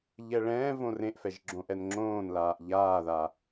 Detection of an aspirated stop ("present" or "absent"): absent